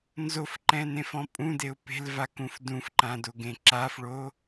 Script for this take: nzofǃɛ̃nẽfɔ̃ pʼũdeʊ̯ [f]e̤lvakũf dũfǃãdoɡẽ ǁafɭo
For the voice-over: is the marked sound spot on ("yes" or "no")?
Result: no